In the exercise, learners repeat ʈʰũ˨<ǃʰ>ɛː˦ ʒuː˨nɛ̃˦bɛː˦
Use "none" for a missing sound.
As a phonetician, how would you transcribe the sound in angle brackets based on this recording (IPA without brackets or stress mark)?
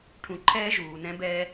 ǃʰ